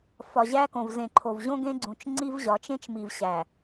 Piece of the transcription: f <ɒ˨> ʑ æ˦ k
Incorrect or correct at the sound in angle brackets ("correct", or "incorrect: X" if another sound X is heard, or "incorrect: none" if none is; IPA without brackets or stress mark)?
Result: correct